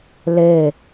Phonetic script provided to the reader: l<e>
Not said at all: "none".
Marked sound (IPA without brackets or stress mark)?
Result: e